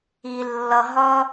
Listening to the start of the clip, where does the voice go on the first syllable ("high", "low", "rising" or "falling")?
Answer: low